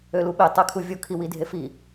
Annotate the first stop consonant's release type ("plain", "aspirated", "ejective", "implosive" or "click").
implosive